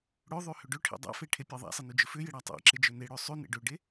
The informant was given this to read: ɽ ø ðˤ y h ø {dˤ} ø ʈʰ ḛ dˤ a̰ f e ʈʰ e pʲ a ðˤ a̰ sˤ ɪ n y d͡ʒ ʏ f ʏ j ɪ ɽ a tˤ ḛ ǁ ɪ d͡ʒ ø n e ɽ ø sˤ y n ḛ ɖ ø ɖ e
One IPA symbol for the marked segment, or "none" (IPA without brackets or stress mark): ɖ